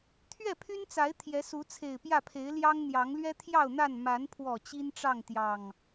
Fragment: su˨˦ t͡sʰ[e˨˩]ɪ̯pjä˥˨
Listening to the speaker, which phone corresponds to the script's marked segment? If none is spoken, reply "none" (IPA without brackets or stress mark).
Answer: e˨˩